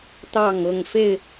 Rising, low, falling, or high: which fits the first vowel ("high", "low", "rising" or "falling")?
falling